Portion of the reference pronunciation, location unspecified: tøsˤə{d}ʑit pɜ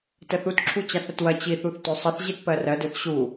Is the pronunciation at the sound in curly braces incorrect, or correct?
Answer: incorrect: θ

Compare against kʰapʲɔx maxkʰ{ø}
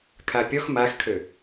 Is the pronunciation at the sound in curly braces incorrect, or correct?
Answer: correct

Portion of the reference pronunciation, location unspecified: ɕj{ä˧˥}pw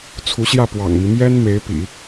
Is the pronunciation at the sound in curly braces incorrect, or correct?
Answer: incorrect: ä˥˩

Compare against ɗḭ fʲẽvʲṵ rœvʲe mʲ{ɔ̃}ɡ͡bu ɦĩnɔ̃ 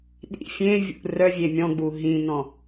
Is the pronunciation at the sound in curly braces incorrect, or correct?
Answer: correct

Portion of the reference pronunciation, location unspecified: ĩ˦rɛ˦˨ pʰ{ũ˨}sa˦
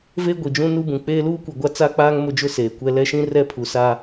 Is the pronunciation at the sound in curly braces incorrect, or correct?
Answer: incorrect: u˨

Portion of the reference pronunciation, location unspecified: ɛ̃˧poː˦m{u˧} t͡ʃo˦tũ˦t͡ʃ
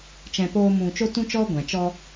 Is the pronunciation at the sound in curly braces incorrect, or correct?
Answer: incorrect: ũ˧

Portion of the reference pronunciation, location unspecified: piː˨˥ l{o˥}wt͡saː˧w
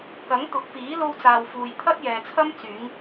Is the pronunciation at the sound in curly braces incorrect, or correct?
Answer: correct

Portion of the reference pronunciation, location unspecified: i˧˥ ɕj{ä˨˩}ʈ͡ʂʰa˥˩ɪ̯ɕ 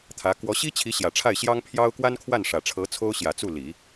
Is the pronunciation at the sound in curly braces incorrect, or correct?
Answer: correct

